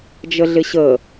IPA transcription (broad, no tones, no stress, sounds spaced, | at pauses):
d͡ʒ ə ɮ ɪ ɕ ə